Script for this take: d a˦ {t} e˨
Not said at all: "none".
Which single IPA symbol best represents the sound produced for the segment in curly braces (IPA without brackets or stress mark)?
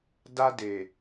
d